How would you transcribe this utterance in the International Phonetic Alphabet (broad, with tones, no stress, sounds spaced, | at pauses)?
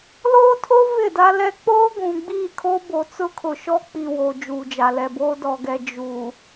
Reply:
l oː˦ tʰ o˦ v ɪ˦˨ d a˦ l ɛ˦ k͡p oː˦ ɡʷ ũ˨ ɡ͡b iː˦˨ kʰ o˦ b o˨ t͡s ʊ˦ kʰ ʊ˨ ʃ ɔ˦ k͡p i˨ w o˨ d͡ʒ uː˨ d͡ʒ a˨ l ɛ˨ b oː˦ d ɔ˨ ɡ ɛ˨ d͡ʒ u˨